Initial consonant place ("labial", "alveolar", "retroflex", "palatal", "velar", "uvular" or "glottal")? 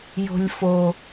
palatal